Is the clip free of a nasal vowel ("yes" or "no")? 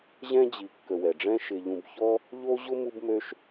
no